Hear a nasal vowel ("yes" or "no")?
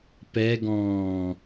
yes